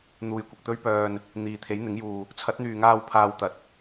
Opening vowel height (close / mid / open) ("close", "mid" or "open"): close